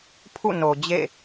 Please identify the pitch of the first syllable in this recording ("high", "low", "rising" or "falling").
falling